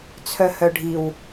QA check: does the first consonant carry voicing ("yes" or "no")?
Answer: no